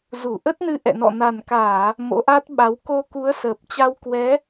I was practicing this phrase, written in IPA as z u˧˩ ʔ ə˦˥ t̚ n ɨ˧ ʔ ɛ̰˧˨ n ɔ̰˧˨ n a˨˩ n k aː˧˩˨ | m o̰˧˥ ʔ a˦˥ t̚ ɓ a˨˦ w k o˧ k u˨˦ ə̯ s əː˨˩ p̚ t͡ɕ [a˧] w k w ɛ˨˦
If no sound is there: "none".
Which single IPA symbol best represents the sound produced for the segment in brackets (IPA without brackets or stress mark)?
a˧